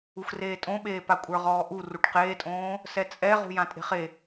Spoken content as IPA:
u x r eː tʼ õ ɓ eː p a kʷʼ ə˞ ʁ ɔː ʔ u r u ʈ q eː tʼ õː | s ɛ t͡sʼ ɛ ʁ ṳ j ã tʼ e̤ χ e

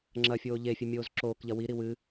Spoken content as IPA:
ŋ͡ǁ ɐ fʲ oː ʎ e fʲ ɵ mʲ oː z ǁ oː k ʎ ɐ w i ɾ i w ɨ

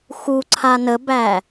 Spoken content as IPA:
x u ǀʰ a n ə b æ

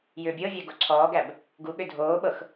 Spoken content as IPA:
j ʏː bʲ ɤ vʲ æ ɡ o ǀʰ ɔː ɡ æ b | ɡ u ɠ ʏ dʱ oː ɓ ɤ x

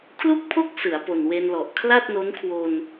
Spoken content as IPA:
kʰ l u˥˩ k̚ pʰ o˥˩ k̚ s ɯ˩˦ a̯ p o˨˩ n w e˧ n l ɔ˨˩ ʔ kʰ l a˥˩ t̚ n o˦˥ n kʰ w o˧ n

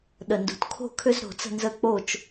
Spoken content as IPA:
ɗ ə˧˩ n d ṳ˧˩ t kʰ o̤˥˧ kʰ ʏ˥ z ɾ o̤˧ t͡s ə̤˥˧ n z ə˥˧ k͡p o˥˧ t͡ʃ

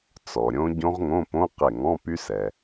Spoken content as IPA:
t͡s ɔ˩ ɾʲ õ˦˥ ɟ õ˦˥ ʁ ŋ õ˧˥˧ p õ˧˥˧ q e˧˩ ŋ ɔ̃˧˥˧ p y˦˥ s ɛ˩

